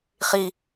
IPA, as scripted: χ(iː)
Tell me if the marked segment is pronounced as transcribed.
no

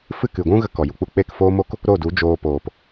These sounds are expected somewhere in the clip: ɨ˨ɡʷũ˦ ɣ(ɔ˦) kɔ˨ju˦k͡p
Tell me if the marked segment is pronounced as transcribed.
no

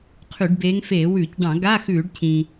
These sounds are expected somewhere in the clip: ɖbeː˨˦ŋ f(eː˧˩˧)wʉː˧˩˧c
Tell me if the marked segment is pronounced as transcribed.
yes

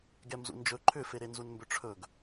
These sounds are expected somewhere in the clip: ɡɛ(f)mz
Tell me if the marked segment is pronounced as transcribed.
no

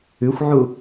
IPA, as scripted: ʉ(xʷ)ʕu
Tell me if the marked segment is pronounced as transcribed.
yes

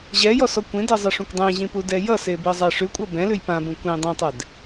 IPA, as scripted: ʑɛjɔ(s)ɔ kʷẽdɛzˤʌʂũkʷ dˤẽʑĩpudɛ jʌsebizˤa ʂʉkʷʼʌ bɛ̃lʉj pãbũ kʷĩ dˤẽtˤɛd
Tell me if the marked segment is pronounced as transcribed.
yes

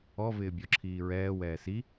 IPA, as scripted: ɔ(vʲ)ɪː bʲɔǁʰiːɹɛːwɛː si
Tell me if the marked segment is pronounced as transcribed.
no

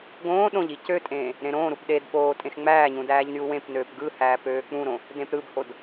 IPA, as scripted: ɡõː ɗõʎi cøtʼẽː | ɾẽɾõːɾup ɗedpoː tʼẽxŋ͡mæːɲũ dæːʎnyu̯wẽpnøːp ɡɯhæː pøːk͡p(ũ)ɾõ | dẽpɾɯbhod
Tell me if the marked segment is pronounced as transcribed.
yes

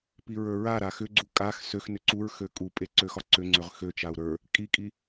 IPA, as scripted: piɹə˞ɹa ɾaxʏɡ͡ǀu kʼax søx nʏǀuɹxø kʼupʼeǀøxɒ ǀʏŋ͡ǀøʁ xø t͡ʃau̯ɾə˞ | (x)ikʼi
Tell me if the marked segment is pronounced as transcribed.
no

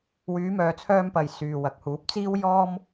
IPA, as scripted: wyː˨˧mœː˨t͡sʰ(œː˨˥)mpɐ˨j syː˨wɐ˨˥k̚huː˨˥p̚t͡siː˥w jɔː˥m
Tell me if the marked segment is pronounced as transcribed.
no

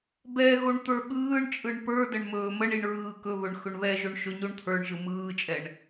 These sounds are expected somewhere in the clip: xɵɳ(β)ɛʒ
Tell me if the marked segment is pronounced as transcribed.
yes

